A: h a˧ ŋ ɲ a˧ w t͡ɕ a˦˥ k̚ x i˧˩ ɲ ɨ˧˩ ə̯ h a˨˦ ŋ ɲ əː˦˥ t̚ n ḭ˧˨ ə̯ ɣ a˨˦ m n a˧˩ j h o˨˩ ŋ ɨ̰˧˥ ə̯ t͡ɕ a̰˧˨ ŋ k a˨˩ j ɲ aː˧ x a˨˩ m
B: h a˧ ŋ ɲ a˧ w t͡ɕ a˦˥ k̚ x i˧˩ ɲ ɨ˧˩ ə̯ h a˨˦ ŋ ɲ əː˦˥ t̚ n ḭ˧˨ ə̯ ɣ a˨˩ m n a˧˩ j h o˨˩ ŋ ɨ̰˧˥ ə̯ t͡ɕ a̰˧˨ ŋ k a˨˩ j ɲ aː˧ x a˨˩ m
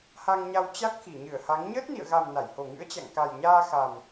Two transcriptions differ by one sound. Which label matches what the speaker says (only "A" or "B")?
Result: B